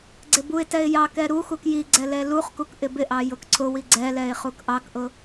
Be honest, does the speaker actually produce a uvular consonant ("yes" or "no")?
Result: yes